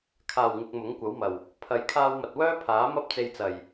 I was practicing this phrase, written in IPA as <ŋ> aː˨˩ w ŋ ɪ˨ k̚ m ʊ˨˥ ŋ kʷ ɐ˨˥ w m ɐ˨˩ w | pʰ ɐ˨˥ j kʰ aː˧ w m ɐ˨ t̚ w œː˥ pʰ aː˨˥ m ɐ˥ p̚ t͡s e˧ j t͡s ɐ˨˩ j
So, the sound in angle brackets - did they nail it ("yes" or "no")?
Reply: no